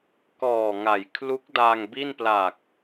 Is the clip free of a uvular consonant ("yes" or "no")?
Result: yes